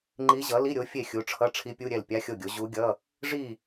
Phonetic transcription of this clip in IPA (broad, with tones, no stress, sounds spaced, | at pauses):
ŋ͡ǃ i˧˥ ʑ ʌ˩˥ l i˧˥˧ ɾʲ o˩˥ fʲ e˥˩ xʲ u˩˥ ʈ͡ʂʰ ʌ˧˥˧ ʈ͡ʂʰ i˧˥ pʲ u˧˥˧ ɾʲ ɛ˥˩ l pʲ a˧˥˧ xʲ o˥˩ ɡʲ o˩˥ ʑ u˧˥ ɡʲ ʌ˧˥˧ | ʐ i˥˩